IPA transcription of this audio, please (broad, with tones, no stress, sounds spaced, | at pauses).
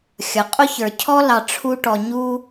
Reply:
xʲ ʌ˩ qʼ ʊ˥ ç ə˞˩ cʰ ɔ˥ l ɑ˨ ʈ͡ʂʰ u˦ ʈ ɔ˨ ɲ u˥